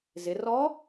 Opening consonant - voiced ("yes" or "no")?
yes